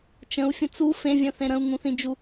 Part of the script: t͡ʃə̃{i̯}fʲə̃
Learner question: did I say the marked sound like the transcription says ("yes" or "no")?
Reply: no